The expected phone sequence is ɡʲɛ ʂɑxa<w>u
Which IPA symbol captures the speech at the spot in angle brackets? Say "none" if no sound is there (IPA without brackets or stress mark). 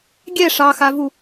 v